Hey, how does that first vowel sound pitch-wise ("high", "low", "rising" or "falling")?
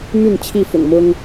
falling